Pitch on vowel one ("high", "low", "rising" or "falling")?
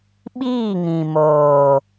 falling